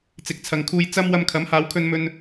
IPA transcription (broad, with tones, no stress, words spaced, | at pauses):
t͡sɪ˨˥k̚t͡sʰɐ˨ŋkʰuː˧j t͡sɐ˥m wɐ˧mkʰɐ˨˥mhaː˨˧w kʰɵ˧nmɵ˧n